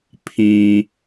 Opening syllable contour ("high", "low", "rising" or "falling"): low